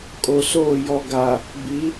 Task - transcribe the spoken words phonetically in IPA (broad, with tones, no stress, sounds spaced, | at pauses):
kʼ o˨ s oː˦˨ j ɔ˨ ɡ a˨ | b i˨˦